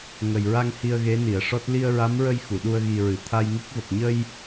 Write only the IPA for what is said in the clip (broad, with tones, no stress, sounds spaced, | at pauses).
ŋ ə˨˩ j ɹ a˧ ŋ h i˧ ə̯ ɣ e˧˥ n i˨˩˨ ə̯ ʂ ɔ˦˥ t̚ l i˧ ə̯ ɹ a˧˥ m ɹ ə˧ j x u˨˩˨ ɗ u˧ ə̯ ɣ i˨˩ ɹ ɨ˨˩˨ t̪ʰ a˧ j ŋ i˦˥ k̚ v ə˨˩ k̚ ɲ ə˧ j